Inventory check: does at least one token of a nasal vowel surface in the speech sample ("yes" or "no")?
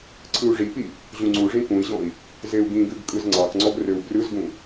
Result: yes